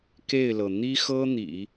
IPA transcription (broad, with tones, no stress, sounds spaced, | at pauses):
k e˥˩ ɪ̯ l ɤ˩ n̪ i˥ x ɤ˥ n̪ ḭ˨˩˦